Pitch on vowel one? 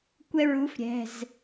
high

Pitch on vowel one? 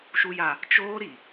low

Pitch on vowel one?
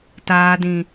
low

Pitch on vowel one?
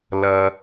low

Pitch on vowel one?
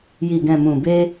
low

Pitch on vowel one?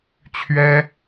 high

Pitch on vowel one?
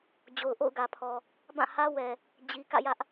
low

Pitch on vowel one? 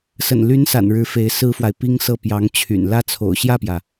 low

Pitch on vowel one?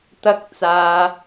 high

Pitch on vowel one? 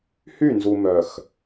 falling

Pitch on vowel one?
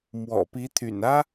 low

